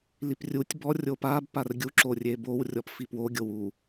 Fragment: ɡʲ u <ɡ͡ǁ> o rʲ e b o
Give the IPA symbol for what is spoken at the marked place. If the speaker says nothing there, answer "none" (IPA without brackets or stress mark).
ǁ